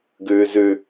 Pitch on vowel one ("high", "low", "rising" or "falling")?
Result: low